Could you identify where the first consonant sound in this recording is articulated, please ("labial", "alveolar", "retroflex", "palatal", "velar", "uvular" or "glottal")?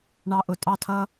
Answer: retroflex